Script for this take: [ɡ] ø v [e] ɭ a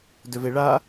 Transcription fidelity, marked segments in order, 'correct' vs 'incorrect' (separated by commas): incorrect, correct